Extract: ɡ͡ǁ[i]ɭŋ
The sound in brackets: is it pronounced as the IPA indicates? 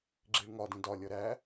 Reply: yes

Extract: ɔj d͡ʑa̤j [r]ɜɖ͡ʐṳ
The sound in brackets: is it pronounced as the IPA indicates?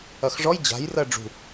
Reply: yes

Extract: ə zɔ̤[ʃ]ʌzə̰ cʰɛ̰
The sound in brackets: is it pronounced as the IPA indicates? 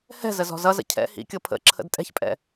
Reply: no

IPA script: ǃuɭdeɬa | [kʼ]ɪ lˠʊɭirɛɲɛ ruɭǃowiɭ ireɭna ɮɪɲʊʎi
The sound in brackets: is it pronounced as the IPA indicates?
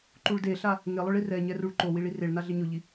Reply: no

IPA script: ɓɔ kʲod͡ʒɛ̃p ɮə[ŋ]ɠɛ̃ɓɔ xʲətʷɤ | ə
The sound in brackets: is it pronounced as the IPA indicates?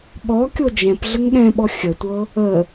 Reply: yes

